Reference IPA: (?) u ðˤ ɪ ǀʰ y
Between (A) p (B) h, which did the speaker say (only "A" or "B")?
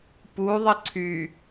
A